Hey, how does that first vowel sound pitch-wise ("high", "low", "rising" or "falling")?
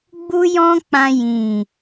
high